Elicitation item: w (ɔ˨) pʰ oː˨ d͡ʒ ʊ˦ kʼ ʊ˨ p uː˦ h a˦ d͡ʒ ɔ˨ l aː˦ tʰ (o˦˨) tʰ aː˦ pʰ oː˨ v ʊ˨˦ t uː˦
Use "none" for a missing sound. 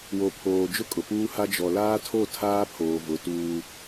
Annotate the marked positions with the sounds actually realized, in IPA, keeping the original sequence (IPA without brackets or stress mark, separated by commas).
o˨, o˦˨